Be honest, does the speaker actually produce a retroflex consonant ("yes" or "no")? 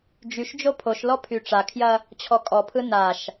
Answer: yes